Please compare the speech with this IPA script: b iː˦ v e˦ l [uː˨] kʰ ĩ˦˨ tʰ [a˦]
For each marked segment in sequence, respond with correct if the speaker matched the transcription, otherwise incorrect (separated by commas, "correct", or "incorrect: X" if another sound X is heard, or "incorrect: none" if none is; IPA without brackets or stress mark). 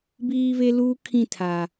incorrect: uː˦, correct